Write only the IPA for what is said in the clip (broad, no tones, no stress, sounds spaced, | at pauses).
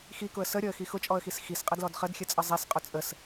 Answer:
x i k ʊ ə̯ s ə ɾʲ ɔ ə̯ x i x ʊ t͡ʃʼ ɔ ə̯ x i s x i s qʼ ə d l ɔ d χ ə d xʲ ə t͡sʼ ə zˤ i s qʼ ʊ t͡sʼ ə s